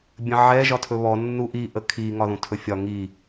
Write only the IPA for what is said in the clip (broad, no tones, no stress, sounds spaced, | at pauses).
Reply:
bʲ ə̃ ʕ ɛ ʒ ɒ tʰ ɵ β ɔ nː u ʔ i ʔ ə kʰ i ŋ ɒ ð ũ tʰ ɵ fʲ ɒ ŋ i